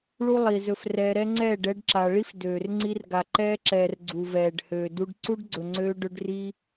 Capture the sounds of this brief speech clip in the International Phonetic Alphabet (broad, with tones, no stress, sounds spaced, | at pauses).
ɭ u˦ lˠ i˨ z ɵ˧ f r ɛː˧ ɾ ɛ˧ ŋ͡ǀ ɛː˦˨ ɖ ɛ˧ ɖ ǁ a˨ ɭ i˦ f d øː˨ r ŋ͡ǀ i˧ r ɡ a˨ ǃ ɛː˧ ǁ ɛː˨ r ɡ͡ǀ u˨ v ɛː˨ ɖ h øː˨ d u˧ ɖ ǀ u˦ ɖ ɡ͡ǀ ɵ˨ ŋ͡ǀ øː˧ ɖ ɵ˧ ɖ r i˧